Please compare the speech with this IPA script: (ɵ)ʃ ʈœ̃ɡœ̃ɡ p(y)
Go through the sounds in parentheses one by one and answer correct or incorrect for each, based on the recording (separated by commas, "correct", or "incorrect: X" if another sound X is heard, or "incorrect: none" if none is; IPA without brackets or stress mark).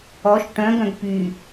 incorrect: ɔ, correct